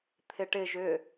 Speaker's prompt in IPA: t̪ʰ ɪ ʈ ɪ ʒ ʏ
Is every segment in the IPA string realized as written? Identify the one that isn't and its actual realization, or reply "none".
none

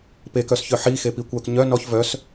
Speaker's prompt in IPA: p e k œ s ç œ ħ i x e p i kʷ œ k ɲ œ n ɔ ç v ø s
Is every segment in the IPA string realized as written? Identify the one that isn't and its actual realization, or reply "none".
ø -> œ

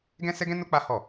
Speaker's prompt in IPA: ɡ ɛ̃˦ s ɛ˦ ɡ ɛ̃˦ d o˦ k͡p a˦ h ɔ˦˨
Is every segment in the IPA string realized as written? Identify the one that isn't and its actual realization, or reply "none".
d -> n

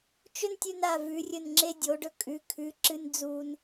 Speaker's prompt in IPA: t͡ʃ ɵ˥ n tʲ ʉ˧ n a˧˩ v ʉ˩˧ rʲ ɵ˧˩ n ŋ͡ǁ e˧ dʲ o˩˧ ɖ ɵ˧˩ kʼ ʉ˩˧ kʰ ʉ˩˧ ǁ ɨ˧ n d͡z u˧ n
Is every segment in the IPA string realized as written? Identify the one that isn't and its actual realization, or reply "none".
none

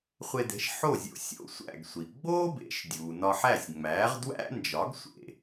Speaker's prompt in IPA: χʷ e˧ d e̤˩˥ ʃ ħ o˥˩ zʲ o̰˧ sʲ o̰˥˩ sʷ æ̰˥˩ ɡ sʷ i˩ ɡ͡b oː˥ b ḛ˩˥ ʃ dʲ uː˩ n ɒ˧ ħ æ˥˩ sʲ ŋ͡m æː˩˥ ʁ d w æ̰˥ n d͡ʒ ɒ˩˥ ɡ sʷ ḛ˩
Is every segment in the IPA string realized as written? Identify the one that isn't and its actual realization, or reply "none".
none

